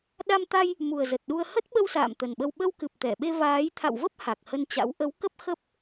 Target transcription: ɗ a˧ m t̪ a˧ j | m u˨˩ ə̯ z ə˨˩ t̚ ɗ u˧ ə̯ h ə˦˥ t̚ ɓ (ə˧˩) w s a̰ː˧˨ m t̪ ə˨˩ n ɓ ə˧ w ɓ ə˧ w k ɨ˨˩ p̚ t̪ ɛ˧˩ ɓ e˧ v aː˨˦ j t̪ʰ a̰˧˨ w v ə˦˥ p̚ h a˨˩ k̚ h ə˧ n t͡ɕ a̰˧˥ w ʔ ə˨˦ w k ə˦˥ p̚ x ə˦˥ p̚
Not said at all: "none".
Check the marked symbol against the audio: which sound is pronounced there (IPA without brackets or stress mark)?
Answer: ə˧